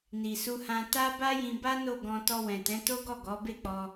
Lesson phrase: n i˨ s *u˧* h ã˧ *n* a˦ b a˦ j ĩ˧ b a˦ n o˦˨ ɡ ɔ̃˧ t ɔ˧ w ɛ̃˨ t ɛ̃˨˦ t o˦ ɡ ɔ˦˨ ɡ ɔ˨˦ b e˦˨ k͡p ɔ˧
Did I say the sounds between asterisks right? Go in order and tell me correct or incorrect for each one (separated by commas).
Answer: correct, incorrect